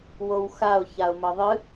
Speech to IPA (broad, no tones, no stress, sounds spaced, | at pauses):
w o w x a ʊ̯ ç a ʊ̯ m ʌ ðˤ ɨ